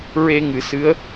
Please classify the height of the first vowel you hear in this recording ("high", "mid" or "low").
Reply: mid